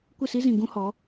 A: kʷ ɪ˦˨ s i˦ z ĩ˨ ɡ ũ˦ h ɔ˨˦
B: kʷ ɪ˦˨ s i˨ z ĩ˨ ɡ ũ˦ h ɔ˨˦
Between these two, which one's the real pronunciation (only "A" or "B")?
A